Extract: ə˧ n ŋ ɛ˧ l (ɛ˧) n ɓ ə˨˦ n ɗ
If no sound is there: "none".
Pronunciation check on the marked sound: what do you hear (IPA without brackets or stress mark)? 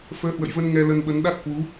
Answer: ə˧